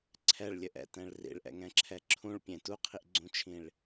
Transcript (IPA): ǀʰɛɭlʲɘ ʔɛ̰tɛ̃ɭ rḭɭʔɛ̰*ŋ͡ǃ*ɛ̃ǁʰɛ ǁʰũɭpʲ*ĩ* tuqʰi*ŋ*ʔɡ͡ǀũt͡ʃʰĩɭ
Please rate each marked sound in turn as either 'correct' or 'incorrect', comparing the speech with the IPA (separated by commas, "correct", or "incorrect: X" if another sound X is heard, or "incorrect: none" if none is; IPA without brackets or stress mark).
incorrect: ŋ, incorrect: ẽ, incorrect: none